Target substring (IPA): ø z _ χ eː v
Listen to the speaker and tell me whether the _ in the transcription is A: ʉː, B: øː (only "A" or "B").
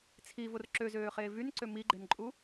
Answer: B